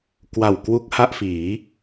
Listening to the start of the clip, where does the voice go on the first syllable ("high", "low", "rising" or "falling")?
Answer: low